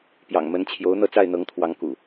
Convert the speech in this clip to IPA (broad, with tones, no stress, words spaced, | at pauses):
pjɑ̰˨˩ŋmə˨˦nt͡ɕʰjo˨˦ʊ̯ n̪ɤ˥˨t͡sa˥˨ɪ̯ n̪ɤ˨˦ŋt̪ʰwɑ˨˦ŋkṵ˨˩